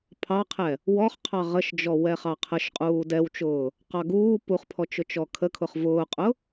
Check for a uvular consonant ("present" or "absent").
present